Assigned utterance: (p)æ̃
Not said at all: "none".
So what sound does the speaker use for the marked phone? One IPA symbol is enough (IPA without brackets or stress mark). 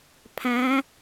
pʰ